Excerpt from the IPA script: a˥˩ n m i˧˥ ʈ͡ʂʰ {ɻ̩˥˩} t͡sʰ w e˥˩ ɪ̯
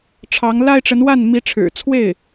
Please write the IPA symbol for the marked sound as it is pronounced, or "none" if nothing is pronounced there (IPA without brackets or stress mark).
ɻ̩˨˩